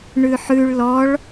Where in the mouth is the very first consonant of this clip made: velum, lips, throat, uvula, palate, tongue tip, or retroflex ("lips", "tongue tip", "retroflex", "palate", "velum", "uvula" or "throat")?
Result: retroflex